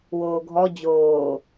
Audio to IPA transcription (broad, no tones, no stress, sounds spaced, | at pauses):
w oː ɡʱ ɔ d͡ʑ oː